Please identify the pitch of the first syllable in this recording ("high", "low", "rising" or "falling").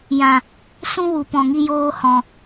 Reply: low